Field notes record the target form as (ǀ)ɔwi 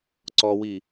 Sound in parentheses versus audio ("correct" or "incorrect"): correct